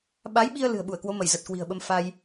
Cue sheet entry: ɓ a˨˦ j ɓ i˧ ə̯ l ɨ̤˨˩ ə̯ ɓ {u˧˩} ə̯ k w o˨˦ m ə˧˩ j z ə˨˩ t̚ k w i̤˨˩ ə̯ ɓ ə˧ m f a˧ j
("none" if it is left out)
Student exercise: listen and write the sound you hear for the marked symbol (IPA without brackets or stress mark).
u˧˩